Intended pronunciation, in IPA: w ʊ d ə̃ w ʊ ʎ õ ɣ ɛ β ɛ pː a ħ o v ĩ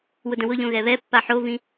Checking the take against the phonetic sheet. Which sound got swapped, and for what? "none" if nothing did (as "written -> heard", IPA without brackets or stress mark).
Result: none